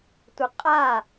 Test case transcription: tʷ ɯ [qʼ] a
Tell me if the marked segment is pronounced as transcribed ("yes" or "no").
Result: yes